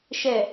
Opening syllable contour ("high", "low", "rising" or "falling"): low